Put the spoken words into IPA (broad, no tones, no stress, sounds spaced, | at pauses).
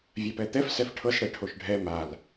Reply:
vʲ a p ɛ t̪ ɛ f s ɛ f ʈʰ ɤ s ɽ ɛ ʈʰ o ʃ ɖʱ ɛ m a l